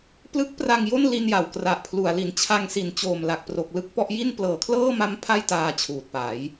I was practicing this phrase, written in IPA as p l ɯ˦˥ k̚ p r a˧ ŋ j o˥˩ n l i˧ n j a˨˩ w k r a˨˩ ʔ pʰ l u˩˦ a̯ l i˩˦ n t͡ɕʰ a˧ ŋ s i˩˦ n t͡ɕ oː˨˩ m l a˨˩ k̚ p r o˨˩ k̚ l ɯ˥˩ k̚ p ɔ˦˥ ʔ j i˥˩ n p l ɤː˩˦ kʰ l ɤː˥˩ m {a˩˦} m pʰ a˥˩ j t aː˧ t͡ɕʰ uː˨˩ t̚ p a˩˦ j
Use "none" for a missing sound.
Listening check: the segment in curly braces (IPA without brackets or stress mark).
a˦˥